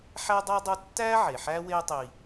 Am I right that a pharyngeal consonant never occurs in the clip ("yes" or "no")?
no